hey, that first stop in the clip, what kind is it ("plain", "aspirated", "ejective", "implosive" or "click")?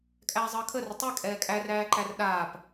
ejective